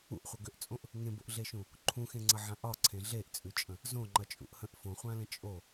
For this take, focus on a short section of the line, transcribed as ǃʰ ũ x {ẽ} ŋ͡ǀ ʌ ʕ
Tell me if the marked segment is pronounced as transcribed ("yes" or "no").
yes